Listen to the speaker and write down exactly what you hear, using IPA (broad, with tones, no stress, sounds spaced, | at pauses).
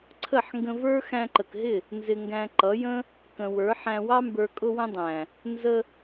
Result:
ǀʰ ə˦˨ ħ ŋ ɡ ə̃˧ v ə˞˦ x æ̃˧ ǃ ə˨ k ɦ ɪ˦˨ | n z ɪ˧ ŋ ɡ æ̃˧ ǃ ʌ˨˦ j ə̃˦ | k ə̃˨ w ə˞˨˦ ħ æ̃˧ w ɑ˦ m b ə˞˧ kʼ ʊ˧ w ə̃˧ dˤ æ̃˨ | n z ə˧